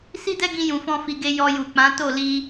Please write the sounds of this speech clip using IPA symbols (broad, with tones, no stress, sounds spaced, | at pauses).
s i˦ d ɛ˦ ɡ ĩ˧ j ũ˨ f ɔ̃˧ f i˨ ɡ e˧ j ɔ˧ j u˨ k͡p ã˨˦ t o˦˨ l i˧